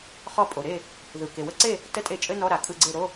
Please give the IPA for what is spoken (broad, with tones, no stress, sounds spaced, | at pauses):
χ ɔ˧ pʼ o˩ ɾ e˥˨ | ð ɯ˩ k e˩ w ə˦˥ ǀ e˥˨ | t ə˧˥˧ tʼ e˧˩ t͡ʃʼ ɘ˧˥˧ n ɔ˧˥˧ ɾ a˩ kʼ ɯ˥˨ ɡ͡ǀ e˥˨ ɾ o˧˥˧